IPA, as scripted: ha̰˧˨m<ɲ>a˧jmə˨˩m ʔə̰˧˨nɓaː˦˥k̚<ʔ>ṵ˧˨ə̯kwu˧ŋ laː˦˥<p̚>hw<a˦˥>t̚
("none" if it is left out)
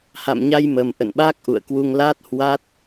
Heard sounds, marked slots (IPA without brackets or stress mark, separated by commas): ɲ, ʔ, t̚, a˦˥